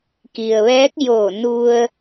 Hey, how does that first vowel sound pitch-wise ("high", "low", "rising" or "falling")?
low